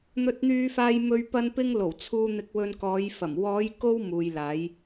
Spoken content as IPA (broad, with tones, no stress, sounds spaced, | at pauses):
n̪ ɵ˧ t̚ n̪ yː˧ f aː˧ j m ɵ˧ ɥ p ɐ˧ n p ɪ˧ ŋ l o˨˩ w t͡sʰ uː˧ n̪ ɪ˧ k̚ w ɵ˧ n k ɔː˨˧ j f ɐ˨˩ m w ɔː˨˧ j k o˧ w m uː˨ j l aː˨˧ j